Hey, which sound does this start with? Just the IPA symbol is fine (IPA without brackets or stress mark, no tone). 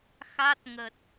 x